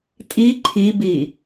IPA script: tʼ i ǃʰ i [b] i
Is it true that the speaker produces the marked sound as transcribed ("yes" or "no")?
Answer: yes